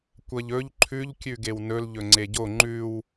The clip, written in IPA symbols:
kʷ ɐ ʎ ɵ ʎ ǃʰ ʉ ʎ kʲ ʉ ɡ e w n ɵ l ʎ ɵ ŋ͡ǀ e ɟ o ŋ͡ǃ ʉ w

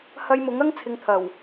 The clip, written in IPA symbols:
h ɐ˧ j m ʊ˨˥ ŋ ɐ˥ ŋ t͡sʰ ɪ˧ ŋ t̪ʰ ɐ˨˩ w

